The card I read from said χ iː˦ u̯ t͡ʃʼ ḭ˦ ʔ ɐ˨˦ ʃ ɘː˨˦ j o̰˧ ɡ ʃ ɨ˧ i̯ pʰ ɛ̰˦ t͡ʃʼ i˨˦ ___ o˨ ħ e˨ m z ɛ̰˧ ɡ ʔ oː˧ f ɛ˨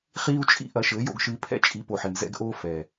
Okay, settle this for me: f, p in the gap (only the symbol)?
p